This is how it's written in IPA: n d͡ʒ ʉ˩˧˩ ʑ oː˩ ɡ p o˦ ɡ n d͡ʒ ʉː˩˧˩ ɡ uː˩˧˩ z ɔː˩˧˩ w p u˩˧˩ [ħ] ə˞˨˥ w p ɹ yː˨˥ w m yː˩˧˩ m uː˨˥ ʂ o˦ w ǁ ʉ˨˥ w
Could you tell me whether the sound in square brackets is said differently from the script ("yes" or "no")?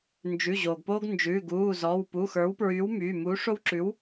yes